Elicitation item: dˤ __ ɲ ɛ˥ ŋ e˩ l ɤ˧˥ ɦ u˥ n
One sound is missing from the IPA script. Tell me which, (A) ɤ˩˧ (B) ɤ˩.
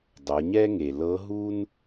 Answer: A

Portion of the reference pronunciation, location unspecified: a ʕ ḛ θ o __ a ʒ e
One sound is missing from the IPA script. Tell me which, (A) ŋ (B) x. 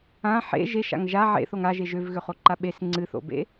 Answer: A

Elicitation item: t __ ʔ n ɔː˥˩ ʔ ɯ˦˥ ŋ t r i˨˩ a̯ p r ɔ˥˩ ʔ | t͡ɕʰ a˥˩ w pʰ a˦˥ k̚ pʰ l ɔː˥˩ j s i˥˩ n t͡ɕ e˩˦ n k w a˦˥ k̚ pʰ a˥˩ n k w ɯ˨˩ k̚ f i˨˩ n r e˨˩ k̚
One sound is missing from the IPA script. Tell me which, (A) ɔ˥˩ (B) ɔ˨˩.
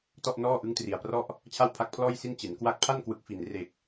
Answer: A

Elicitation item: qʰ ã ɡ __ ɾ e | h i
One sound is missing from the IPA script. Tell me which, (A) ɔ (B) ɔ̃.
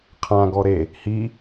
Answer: A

